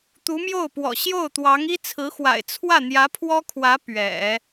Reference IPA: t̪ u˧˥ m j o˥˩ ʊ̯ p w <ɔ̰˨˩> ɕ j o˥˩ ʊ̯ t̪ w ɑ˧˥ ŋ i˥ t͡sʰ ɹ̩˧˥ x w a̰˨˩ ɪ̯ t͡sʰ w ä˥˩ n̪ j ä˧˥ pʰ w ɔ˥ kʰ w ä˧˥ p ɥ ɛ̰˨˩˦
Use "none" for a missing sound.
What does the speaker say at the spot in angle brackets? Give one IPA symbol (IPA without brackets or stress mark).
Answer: ɔ̰˨˩